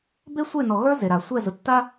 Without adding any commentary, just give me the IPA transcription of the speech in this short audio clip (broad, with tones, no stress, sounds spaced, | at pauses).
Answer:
b e˦ sʷ e˦˨ n ɔ˨ ɣ ə˞˦ z e˨ ɾ a˨ sʷ ɛ˦˨ z ʊ˨ tː a˦